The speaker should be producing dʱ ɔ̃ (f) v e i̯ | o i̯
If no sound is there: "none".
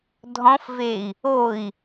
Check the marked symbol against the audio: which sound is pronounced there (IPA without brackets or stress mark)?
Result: f